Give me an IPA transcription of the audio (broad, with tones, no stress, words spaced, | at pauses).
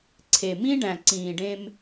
ǀʰe˨mĩ˦ɖæ̃˨ ǀĩː˨ɖẽ˦m